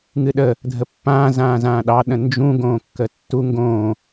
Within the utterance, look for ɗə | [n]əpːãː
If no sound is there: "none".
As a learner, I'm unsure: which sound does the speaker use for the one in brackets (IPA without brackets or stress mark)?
dʱ